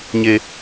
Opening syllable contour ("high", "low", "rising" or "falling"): low